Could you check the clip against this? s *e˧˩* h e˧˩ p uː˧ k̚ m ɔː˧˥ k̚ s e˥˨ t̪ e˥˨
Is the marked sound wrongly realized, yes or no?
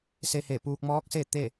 yes